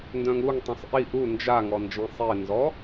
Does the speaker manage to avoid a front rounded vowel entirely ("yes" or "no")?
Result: no